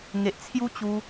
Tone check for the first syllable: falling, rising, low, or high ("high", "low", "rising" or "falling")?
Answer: low